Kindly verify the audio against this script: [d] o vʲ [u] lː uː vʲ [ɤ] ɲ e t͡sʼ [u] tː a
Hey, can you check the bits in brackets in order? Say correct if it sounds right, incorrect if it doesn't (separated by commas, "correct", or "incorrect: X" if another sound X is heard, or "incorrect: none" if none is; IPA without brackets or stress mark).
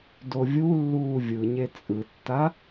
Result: correct, correct, incorrect: ɯ, incorrect: ɯ